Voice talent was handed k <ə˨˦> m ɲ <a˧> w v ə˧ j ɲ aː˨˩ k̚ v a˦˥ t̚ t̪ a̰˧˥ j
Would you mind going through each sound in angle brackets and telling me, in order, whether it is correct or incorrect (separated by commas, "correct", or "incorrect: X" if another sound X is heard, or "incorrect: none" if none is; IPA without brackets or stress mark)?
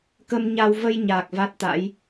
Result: incorrect: ə˧, correct